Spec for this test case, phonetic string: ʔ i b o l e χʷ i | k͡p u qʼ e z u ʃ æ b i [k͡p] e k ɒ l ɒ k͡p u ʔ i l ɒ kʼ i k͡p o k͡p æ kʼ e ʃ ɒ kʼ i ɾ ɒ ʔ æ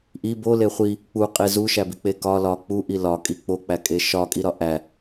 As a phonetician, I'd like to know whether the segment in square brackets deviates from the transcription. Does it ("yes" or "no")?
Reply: no